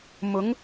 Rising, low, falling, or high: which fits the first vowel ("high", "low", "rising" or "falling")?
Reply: rising